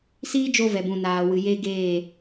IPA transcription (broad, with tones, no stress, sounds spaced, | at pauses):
s iː˦ d͡ʒ o˧ v ɛ˨ b ũ˨ n aː˨ w ɨ˨ j e˦ ɡ eː˦˨